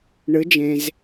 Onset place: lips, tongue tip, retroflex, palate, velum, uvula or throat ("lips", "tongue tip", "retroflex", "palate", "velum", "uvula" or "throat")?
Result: retroflex